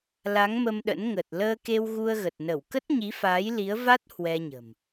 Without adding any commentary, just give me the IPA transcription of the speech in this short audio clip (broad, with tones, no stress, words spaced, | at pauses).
la˨˦ŋmə˧mɗə̰˧˥n ŋə˨˩t̚ləː˧ke˧w ɣu˧ə̯ɣə˨˩t̚nə˧˩w kə˦˥t̚ɲi˨˦faː˨˦j li˨˦ə̯va˦˥t̚ hwɛ˧ɲə̤˨˩m